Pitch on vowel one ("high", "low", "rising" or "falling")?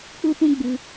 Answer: high